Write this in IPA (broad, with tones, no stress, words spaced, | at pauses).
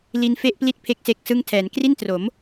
li˧nfe˥˩ʔpli˥˩t̚ pʰe˥˩k̚se˦˥k̚sɯ˥˩ŋ tʰɛː˩˦n kri˥˩ntro˩˦m